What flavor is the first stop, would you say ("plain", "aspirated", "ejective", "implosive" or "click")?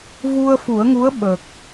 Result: implosive